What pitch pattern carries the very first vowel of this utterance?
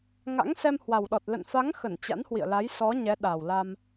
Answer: rising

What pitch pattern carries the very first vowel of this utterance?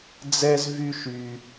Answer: high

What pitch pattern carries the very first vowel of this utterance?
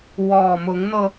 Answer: low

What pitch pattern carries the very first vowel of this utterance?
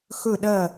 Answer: falling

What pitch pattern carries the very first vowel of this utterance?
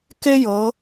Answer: high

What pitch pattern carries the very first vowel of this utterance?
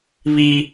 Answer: high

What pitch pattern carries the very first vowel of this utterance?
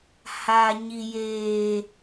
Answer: high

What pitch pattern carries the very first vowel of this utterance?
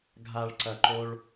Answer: low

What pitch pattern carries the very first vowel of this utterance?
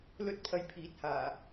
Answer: high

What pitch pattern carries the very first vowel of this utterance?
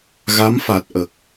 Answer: rising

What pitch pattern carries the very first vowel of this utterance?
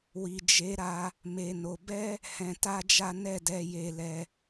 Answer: low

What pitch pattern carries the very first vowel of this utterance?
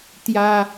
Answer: high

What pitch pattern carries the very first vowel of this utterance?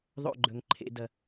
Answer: falling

